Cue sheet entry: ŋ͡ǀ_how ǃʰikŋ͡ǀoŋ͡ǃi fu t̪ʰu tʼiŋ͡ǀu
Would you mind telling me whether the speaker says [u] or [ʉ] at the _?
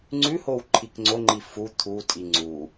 ʉ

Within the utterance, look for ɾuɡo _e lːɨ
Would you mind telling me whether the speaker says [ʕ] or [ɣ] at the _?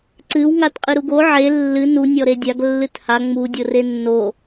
ʕ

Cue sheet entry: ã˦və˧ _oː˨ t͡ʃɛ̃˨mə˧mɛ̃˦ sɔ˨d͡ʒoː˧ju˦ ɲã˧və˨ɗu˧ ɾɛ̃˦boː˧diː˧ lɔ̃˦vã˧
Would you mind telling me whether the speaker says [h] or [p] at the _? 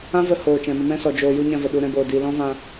h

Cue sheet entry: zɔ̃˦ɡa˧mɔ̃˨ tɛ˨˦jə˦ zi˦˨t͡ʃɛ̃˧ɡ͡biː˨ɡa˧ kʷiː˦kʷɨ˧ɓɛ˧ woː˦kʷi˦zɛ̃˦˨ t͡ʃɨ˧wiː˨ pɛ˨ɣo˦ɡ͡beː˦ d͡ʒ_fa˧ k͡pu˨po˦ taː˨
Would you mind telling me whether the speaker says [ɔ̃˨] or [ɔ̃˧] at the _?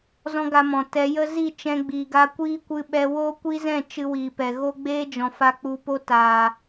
ɔ̃˨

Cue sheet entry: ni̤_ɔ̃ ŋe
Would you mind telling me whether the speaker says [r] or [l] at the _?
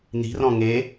r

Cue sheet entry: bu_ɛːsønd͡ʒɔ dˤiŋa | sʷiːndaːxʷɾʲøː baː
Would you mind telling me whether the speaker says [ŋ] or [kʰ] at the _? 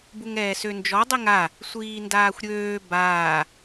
ŋ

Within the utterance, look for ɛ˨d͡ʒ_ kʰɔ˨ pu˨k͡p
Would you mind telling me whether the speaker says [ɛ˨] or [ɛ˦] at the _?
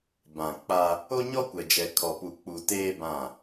ɛ˨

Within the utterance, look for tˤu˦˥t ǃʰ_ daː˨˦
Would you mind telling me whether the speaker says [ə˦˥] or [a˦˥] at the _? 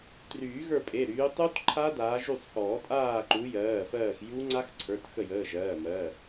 a˦˥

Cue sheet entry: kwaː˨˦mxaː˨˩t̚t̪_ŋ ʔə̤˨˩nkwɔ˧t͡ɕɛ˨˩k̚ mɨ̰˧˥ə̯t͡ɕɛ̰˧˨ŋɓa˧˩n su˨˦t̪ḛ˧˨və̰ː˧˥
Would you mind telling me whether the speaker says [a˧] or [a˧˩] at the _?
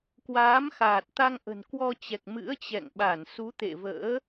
a˧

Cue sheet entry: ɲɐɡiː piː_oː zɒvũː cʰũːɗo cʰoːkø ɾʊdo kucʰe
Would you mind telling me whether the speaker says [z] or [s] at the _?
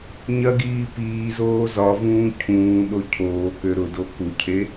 z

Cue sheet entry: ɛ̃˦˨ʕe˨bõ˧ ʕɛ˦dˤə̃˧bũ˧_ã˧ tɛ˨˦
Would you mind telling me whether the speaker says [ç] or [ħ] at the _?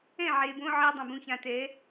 ç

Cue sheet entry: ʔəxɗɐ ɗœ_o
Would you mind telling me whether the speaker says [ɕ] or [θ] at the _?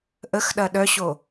ɕ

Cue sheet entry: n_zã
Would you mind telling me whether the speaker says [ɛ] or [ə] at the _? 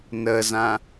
ə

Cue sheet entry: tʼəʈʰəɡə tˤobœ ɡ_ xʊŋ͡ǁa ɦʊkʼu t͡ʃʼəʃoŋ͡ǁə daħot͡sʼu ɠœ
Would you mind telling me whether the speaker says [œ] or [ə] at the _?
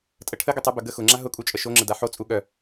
ə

